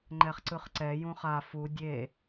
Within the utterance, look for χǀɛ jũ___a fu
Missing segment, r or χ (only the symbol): χ